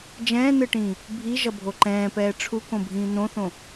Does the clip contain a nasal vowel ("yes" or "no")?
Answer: yes